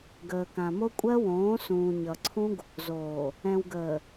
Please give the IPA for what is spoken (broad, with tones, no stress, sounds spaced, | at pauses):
ɡ əː˨ k ã˨ m o˦ kʷʼ ɜ˦ w õː˨˦ s ũː˨ ɲ ʌ˨ ǀʰ ũ˦ ɡ | z oː˨ | ɛ̃˨ w ɡ əː˨